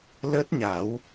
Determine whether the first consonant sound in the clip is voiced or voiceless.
voiced